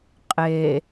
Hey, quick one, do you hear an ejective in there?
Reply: yes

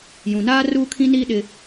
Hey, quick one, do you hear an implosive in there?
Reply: yes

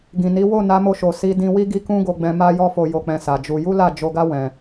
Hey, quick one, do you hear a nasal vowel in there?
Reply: yes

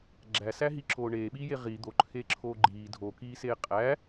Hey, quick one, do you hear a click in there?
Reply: yes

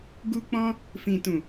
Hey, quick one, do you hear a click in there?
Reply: no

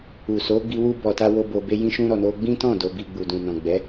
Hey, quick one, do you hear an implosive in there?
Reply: no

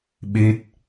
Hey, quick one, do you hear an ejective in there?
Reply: no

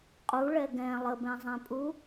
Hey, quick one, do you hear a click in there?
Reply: no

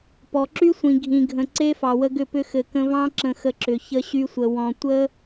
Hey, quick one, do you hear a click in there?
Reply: yes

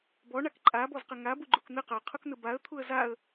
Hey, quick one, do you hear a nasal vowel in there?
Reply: no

